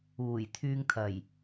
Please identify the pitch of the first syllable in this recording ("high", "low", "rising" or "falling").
low